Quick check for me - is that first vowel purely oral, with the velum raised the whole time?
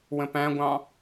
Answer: no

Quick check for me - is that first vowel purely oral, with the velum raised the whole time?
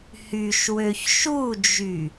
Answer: yes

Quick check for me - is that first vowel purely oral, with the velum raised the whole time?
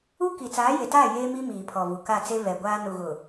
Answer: yes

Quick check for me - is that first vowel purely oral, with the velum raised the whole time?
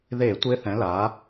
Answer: yes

